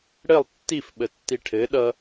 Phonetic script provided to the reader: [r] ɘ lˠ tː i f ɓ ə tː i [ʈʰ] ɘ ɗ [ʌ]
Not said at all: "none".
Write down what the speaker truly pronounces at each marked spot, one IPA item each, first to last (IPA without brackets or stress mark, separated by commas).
ɽ, ʈʰ, ʌ